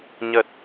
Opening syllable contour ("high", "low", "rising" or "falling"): low